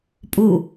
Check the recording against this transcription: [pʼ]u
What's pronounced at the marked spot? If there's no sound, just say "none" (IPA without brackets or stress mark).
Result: pʼ